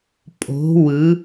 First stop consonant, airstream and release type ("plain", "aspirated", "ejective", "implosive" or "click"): ejective